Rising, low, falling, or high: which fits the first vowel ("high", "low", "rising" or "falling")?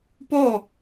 falling